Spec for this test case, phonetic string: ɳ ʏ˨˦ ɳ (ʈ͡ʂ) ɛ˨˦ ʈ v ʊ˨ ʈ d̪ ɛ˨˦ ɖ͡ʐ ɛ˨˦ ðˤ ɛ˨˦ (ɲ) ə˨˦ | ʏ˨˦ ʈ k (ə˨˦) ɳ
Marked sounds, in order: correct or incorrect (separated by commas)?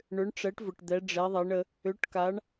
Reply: correct, incorrect, incorrect